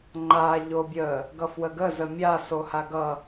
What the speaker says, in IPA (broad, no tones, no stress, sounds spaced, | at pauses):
ŋ͡ǃ a ʎ o bʲ ə | ɡ ʌ f w ə ɡ ə z ə mʲ a s o h a ɡ ʌ